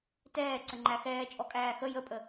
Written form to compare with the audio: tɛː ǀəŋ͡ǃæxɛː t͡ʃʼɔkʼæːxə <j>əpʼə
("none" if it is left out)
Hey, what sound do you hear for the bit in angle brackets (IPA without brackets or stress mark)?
j